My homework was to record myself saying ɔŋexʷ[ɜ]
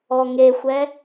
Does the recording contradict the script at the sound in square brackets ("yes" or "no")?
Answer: yes